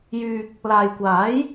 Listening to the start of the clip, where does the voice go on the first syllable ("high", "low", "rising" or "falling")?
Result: low